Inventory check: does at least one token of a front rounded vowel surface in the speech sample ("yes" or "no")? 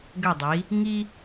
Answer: yes